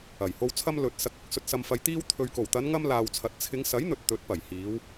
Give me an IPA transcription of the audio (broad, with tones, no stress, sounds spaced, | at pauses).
ɐ˨˩ j h o˨ w t͡sʰ ɐ˧ m l ɵ˨ t̚ s ɐ˨ k̚ ɐ˥ k̚ s ɵ˨ t̚ s ɐ˨ m f ɐ˨ j t̪ iː˧ w t̪ʰ ɵ˨ ɥ k o˨˩ w t̪ ɐ˨˧ n ŋ ɐ˧ m l aː˨ w t͡sʰ ɐ˨ t̚ t͡sʰ ɪ˨˧ ŋ s ɐ˨˥ j n̪ ɵ˨ t̚ t̪ ɵ˨˥ t̚ p ɐ˨˩ j h iː˨˧ w